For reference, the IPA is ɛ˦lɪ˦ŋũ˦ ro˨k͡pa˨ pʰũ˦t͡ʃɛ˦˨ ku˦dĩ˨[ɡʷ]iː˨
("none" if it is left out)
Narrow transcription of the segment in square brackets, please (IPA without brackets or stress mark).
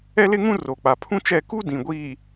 ɡʷ